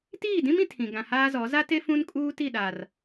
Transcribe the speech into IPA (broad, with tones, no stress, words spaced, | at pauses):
tiː˦˨dĩ˦mĩ˨ tʰĩ˨ ɡã˨haː˦zɔ˨˦ za˦te˦ fũ˦nkʼuː˦ti˦˨ ɗa˨r